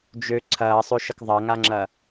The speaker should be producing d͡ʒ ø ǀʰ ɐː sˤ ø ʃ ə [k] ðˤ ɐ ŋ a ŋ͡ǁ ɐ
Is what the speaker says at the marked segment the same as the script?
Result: yes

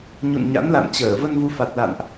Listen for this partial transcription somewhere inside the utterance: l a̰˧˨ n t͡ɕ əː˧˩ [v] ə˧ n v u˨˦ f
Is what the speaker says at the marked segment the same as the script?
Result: yes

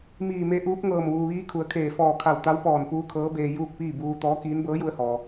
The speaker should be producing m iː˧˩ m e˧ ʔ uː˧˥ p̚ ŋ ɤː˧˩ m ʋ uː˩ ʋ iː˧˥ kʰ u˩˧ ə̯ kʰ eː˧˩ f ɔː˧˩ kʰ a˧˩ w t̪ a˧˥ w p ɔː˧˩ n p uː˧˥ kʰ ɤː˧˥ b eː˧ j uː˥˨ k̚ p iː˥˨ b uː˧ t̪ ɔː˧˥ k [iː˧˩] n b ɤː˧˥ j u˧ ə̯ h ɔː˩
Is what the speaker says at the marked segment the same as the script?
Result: no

